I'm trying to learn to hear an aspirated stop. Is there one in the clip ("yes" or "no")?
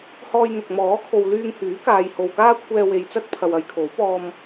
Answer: yes